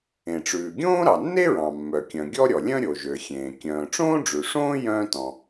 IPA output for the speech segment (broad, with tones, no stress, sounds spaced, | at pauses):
ẽ˩ ʈ͡ʂ ʉː˩ ɡʲ õː˥ ɾ ɑ˩ nː e˥ ɹ ɑ̃˩ mː œ˩ kʲ œ̃˩ ɡʲ ɔ˥ ɾʲ ɔ˩ lʲ œ̃˥ ɾʲ o˩ ʒ ø˩ xʲ ẽː˩ kʲ œ̃ː˩ ʈ͡ʂ õː˥ ɖ͡ʐ ʉ˩ ʂ õː˥ j œ̃ː˥ t ɔ̃˩